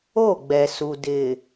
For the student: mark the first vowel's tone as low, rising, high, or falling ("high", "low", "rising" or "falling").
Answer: falling